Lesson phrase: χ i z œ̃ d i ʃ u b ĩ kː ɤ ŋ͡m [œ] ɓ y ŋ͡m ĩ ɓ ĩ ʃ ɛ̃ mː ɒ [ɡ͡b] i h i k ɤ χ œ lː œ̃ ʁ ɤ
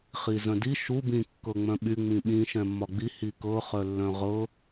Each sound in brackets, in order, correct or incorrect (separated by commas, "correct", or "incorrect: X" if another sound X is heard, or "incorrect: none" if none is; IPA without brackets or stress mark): incorrect: œ̃, correct